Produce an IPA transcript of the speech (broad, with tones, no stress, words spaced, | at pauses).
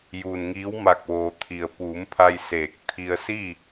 juː˩n ŋiː˧˥w ma˧˩k̚ʋoː˩t̪ʰi˩ə̯ puː˩˧m pʰa˧jseː˧˩k̚t̪ʰi˧ə̯ si˥˨